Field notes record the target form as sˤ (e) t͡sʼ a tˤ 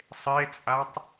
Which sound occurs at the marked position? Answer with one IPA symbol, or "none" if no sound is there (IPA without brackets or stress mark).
e